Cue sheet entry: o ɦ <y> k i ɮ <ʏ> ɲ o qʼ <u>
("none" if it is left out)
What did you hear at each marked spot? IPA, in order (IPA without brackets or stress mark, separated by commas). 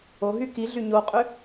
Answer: y, y, ʏ